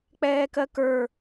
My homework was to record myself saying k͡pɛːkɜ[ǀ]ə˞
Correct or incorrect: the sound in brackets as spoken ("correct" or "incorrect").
incorrect